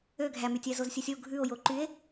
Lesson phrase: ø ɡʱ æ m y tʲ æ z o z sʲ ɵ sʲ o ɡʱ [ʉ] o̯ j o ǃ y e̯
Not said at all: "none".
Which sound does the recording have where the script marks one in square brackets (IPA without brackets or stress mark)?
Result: ʉ